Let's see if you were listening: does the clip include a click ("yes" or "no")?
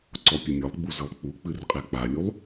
yes